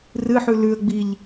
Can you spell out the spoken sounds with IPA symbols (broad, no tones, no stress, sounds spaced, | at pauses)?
r ɨ ħ ʉ l ʉ ə̯ ɡ͡b i ʎ